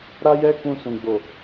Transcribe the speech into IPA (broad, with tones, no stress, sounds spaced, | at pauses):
ɾ a˦ j ɛ˦ k ũ˧ s ũ˨ ɡ͡b o˨